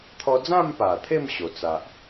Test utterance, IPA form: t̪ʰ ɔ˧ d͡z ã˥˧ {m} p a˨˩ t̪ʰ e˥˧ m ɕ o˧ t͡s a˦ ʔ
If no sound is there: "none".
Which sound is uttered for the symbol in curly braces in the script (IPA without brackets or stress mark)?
m